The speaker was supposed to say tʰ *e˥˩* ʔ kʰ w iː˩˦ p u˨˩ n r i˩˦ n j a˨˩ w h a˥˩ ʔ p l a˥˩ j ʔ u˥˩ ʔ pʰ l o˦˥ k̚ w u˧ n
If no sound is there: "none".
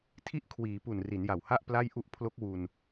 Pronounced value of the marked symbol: i˥˩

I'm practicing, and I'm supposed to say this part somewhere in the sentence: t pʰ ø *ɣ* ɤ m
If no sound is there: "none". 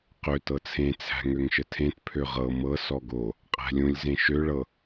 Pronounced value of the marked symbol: ʁ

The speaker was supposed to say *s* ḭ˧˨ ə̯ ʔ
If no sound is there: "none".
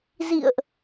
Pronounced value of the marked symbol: z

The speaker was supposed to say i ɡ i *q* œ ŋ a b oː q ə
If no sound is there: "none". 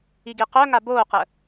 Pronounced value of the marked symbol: q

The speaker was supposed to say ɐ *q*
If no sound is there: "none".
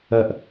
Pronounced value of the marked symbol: ʔ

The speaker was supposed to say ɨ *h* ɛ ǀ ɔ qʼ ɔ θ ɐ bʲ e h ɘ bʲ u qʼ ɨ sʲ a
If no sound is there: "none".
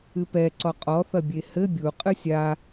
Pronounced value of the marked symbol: p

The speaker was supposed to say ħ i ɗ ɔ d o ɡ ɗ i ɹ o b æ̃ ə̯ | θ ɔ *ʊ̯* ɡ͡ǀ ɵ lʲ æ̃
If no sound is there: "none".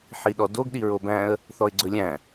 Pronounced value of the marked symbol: ɪ̯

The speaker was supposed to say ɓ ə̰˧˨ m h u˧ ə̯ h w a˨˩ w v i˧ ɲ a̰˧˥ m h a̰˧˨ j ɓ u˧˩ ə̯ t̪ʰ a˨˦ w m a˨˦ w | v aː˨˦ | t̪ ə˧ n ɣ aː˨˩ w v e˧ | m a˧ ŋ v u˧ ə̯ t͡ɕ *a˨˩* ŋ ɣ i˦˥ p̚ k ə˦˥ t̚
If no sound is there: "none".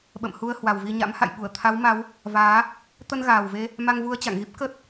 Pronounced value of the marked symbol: a̰˧˨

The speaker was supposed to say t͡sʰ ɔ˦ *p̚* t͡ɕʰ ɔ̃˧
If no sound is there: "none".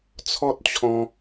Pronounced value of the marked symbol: t̚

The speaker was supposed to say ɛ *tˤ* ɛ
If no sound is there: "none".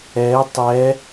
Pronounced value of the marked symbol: tˤ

